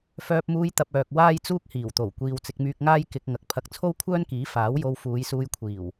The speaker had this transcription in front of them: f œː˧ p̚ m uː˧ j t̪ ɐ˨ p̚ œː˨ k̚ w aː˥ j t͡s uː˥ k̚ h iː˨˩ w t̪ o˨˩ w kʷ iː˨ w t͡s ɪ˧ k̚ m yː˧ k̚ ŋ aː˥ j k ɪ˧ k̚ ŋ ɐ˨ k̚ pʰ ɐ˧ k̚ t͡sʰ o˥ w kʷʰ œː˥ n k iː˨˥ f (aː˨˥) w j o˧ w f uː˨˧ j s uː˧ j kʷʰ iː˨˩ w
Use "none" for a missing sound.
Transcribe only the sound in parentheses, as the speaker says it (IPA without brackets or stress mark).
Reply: aː˨˥